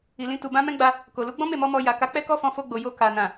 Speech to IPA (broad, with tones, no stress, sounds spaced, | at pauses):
i˨ l ĩ˧ t u˨ b ã˧ m ɛ̃˦ ɡ͡b a˧ | k o˨ l u˨˦ ɡ͡b ɔ̃˦ m e˦˨ m ɔ˧ m ɔ˧ j a˨ k a˨˦ k͡p ɛ˦ k ɔ˦ f ɔ̃˧ f o˧ ɡ͡b o˨ j o˧ k a˨ n ã˨